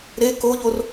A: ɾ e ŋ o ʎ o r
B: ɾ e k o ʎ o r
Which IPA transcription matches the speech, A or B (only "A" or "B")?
B